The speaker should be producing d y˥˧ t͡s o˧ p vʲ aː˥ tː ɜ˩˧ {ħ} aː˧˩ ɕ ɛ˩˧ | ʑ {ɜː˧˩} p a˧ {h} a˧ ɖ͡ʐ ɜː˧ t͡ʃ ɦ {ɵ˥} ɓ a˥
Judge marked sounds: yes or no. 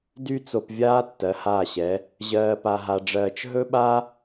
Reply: no, no, no, yes

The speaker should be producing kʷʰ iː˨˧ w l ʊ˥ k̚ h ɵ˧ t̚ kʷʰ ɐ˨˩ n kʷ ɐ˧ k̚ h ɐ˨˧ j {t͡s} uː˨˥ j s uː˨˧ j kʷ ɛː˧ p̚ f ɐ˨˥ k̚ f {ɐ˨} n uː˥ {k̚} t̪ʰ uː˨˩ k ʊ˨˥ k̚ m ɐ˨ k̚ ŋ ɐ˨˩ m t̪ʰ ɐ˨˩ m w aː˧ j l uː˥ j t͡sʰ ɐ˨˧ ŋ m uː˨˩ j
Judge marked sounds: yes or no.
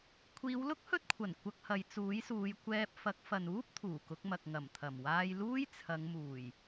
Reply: yes, yes, no

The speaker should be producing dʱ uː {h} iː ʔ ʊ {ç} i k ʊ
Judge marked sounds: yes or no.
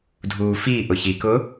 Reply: no, yes

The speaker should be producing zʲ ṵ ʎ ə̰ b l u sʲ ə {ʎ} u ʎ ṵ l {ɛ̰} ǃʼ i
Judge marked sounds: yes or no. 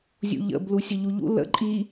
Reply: yes, no

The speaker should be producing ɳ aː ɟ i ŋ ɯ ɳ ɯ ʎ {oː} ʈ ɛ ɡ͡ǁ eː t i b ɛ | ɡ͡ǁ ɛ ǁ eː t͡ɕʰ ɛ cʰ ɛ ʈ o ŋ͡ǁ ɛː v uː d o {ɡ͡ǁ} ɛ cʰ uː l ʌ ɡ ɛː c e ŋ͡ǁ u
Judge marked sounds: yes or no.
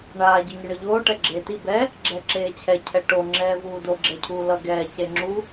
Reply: yes, yes

